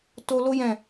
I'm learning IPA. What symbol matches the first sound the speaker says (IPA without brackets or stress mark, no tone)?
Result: t